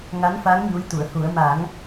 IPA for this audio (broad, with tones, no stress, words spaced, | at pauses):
ŋa˧˥nfa˧˥ŋ ɲu˧˥jt̪u˨˩˨ə̯hu˨˩˦ə̯ ma˨˩˦ŋ